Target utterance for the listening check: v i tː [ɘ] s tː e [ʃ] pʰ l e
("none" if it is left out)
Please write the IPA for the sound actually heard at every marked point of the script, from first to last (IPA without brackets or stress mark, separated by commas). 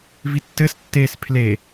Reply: ɘ, s